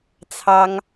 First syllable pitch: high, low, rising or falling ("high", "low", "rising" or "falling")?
high